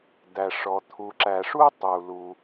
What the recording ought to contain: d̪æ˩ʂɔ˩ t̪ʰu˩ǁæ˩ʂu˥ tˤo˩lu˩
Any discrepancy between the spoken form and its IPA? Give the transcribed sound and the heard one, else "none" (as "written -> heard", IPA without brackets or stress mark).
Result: o˩ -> u˩